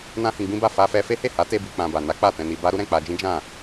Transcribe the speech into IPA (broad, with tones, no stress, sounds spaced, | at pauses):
n ã˦ h ĩ˧ ɡ͡b ĩ˦ b a˦˨ f a˧ f ɛ˧ f e˦ h e˦˨ h a˨˦ t e˧ b i˧ k͡p ã˧ b a˨ n a˨˦ k͡p a˦˨ t ɛ̃˧ n i˧ b a˦ ɾ u˦ ɾ ɛ̃˦˨ k͡p a˧ d͡ʒ ĩ˦ d͡ʒ ã˦˨